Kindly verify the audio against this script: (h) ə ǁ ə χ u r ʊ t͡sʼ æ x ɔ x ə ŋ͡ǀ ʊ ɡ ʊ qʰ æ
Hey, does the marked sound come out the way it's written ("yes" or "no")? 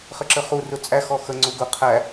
no